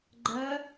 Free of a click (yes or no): no